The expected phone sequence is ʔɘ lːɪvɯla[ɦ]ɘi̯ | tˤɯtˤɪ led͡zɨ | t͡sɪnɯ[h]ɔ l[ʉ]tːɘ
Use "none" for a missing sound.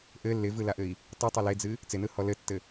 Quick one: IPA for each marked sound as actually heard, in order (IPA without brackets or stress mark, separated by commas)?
ʔ, h, ɘ